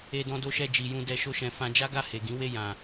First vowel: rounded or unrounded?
unrounded